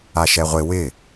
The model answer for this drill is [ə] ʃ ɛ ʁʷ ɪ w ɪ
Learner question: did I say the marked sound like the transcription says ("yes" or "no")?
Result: no